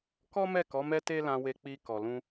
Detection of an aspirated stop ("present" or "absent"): absent